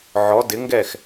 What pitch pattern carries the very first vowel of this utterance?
rising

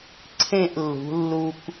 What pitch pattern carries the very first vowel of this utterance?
falling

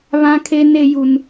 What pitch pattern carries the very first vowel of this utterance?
high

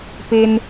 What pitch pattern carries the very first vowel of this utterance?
high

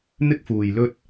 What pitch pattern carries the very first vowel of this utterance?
high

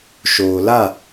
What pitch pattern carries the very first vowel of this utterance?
low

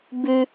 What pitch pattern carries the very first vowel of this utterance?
high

